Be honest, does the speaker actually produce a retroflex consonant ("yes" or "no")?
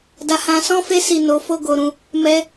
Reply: no